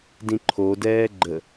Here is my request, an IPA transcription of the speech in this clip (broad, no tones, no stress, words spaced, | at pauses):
dĩǃʰodɛː ɡ͡ǃə